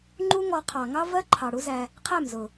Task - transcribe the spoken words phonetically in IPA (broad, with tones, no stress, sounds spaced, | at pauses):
ŋ͡ǃ u˦ ŋ ɔ˧ qʰ ɑ˨ ŋ ɑ˦ v ɜ˦ ǃʰ ɑ˨ ɽ u˦ z æ˧ | qʰ æ˦˨ m z ʊ˨